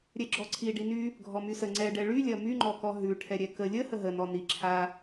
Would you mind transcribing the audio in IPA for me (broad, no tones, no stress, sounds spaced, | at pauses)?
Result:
ɾʲ ɛ ɡ͡ǁ ɔ ǀʰ i ɖ i n y | ɡʱ ɔ m y s ə ŋ͡ǀ ɛ ɖ ɛ ɭ y lʲ ɐ m y ŋ͡ǃ ɔ k ɔ ɦ ʉ ʈʰ ɛ ɾʲ ɛ k ə lʲ ə h ə ɦ ə n ɔ n i ǁʰ a